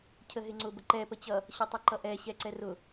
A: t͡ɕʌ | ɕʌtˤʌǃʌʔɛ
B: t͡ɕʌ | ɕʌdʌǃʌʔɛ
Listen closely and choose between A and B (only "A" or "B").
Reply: A